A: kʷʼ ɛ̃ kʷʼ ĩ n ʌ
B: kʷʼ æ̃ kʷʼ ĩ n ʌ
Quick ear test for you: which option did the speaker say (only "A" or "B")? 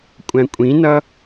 B